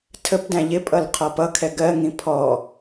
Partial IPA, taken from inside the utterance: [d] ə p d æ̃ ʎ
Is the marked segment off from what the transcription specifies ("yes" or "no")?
yes